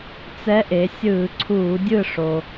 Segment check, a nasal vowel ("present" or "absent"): absent